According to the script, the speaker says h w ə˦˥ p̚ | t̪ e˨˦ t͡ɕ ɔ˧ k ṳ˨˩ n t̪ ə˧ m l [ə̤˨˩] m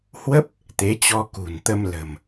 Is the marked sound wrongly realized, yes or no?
no